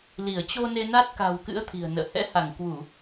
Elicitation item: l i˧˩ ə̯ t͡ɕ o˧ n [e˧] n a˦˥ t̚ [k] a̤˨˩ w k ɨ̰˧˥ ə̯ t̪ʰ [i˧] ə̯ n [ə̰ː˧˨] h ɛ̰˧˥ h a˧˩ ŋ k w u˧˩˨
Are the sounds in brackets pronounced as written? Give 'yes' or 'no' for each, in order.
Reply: yes, yes, no, yes

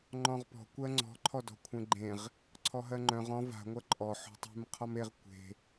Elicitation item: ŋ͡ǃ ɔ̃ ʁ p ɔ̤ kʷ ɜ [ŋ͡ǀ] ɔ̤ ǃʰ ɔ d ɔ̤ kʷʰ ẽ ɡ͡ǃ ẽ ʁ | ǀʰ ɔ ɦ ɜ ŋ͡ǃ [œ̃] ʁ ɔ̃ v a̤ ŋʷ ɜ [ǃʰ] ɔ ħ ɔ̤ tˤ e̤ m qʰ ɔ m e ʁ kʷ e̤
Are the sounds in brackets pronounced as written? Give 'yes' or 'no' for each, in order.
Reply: yes, yes, no

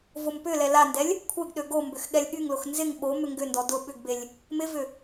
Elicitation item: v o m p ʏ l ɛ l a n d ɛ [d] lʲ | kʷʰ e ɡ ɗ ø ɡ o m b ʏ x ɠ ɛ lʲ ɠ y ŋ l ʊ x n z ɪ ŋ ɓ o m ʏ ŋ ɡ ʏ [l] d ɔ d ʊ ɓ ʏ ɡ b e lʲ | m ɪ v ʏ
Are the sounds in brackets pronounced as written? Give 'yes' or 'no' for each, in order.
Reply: no, no

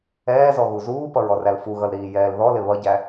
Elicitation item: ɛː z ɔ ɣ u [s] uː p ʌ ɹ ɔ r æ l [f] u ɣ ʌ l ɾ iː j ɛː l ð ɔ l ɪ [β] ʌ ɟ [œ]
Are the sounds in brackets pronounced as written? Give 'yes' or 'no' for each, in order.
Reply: no, yes, yes, no

